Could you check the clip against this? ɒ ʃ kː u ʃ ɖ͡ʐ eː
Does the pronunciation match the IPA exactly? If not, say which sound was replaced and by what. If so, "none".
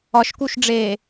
kː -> k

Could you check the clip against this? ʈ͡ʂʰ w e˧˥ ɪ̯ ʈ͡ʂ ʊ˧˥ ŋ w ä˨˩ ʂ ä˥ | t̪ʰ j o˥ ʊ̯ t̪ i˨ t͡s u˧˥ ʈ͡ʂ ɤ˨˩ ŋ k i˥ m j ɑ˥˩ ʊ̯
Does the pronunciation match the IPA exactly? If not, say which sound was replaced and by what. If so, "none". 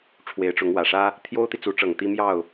k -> t̪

